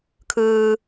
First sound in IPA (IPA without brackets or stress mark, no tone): kʰ